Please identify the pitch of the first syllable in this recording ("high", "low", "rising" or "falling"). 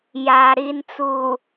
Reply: low